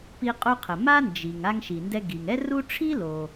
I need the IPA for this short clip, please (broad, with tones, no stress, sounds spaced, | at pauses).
p i˧ qʼ u˧ qʰ ə˩ m a˥ n d͡ʒ i˩ ŋ a˧ ŋ ʃ i˩ n d ɛ˧ ɡ i˩ ŋ ɛ˥ r u˥ ʈ͡ʂʰ i˥ l o˩